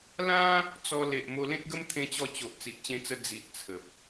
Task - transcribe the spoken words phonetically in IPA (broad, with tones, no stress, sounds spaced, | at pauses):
l ã˦ | t͡s ɔ˧ l e˨ ʔ m o˧ l ẽ˦ t̚ ɡ ə˦ m t̪ʰ ẽ˧ t͡ɕ ɔ˧ t͡ɕ o˨ ʔ t͡s i˨ ʔ t͡ɕ ẽ˧ t͡s ə˧ d͡z i˨ ʔ t͡sʰ ə˨ p̚